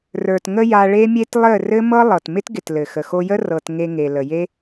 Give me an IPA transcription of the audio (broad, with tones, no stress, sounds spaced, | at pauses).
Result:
r ə˞˨ t ŋ ə˧ j a˧ ɭ e˦ mʲ e˦ t lˠ ɘ˦˨ r ɘ˦ m ɤ˦ lˠ ɤ˨ t m ɪ˦ t ɡ ɪ˨ t l ɘ˨ x ə˨ x o˧ j ə˦ r ɤ˧ t ŋ e˧ ŋ e˨ l ə˨ j e˦